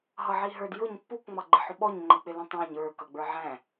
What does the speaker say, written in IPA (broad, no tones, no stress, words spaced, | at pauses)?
ɦʌʕiɦə˞d jʊɲ pːuk ŋ͡mɑɡ͡ǃɪħʊɓɔɲ ŋ͡ǃək͡pɪlũtˤæ̃ɲ ə˞ kʌɡ͡bə˞ʕæ̃